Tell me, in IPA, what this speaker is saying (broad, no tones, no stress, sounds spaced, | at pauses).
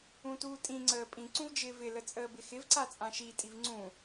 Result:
ũ t uː tʼ ĩ ŋ͡ǀ əː pʼ ĩ ǀ ũ v d͡ʒ ɪː v ɪ l ə t͡sʼ əː b ɪ x ɪ v ǀ a t͡sʼ ã ʃ i tʼ i v ŋ͡ǀ ũ